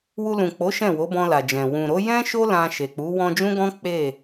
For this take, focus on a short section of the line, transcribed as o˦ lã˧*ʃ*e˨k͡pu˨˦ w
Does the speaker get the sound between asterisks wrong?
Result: no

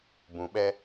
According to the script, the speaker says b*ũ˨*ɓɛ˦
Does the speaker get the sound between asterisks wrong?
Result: no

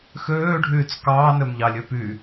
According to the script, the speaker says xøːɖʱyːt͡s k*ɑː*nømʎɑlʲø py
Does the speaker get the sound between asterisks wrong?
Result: no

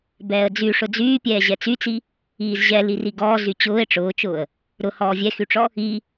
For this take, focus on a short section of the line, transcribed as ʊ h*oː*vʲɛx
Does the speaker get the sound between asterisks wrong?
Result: yes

